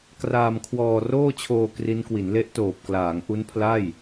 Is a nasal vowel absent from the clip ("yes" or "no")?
yes